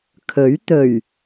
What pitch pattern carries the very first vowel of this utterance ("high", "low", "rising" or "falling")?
rising